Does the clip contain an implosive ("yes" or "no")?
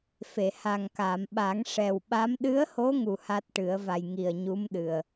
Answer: yes